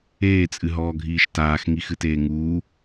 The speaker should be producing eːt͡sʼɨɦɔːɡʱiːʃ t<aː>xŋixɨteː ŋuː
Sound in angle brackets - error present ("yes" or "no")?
no